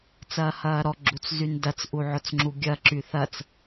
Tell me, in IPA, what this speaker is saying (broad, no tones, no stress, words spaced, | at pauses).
t͡sɐːhɐːɾɔ ɡ͡ǁut͡szyndɐt͡s ʔuʕʊt͡sŋ͡ǁuɡʲɐ ǁyθɐt͡s